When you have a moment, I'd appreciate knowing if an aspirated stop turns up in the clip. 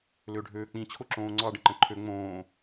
yes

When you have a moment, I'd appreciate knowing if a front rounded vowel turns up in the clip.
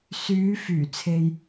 yes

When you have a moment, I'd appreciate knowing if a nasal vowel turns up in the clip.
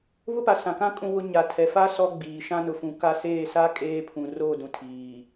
yes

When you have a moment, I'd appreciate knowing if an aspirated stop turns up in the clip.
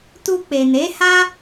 no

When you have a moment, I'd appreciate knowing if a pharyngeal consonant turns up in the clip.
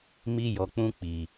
no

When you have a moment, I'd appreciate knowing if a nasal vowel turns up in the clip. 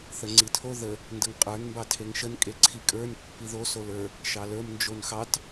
no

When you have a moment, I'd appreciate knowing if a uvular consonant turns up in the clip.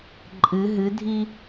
no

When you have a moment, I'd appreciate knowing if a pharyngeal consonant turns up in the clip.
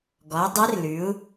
no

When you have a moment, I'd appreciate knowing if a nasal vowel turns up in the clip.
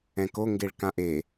yes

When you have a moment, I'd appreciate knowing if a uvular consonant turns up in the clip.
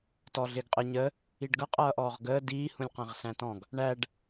yes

